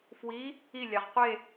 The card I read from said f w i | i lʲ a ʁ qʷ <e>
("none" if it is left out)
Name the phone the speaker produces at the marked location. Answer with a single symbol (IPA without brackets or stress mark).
e